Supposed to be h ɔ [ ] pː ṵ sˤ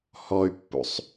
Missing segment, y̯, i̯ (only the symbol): y̯